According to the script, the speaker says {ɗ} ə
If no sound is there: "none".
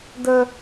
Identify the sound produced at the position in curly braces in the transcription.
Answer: d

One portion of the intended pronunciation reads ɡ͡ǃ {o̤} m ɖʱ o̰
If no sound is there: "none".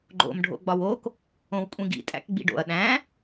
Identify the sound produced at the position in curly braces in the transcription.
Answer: o̰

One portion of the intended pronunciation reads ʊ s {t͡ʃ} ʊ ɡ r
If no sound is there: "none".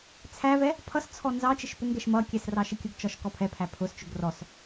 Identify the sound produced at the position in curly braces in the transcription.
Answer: t͡ʃ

